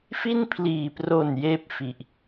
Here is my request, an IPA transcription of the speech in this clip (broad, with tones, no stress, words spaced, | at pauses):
fi˥˩npʰliː˨˩pro˨˩n jeː˥˩p̚fi˨˩ʔ